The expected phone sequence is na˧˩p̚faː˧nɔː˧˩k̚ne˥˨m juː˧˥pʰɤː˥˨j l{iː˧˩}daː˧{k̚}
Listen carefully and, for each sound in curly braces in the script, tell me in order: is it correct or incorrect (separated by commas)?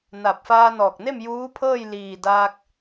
correct, correct